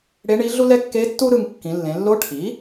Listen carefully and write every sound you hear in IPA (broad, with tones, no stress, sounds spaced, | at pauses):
ɽ e˧˥ ɳ i˧˥ ɮ u˥ l ɛ˥ kː e˧˥ tː u˥ ɾ ɯ˧ ŋ kː ĩ˩˧ lː ẽ˩˧ lː o˧˥ ʈʰ i˩˥